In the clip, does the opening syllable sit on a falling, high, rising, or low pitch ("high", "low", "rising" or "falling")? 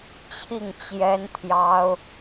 falling